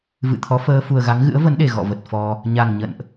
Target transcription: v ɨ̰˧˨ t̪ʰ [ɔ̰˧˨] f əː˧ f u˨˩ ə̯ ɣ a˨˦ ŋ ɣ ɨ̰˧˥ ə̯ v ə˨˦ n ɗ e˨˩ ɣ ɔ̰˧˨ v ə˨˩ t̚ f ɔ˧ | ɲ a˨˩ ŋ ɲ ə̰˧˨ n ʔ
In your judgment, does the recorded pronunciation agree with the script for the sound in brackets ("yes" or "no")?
no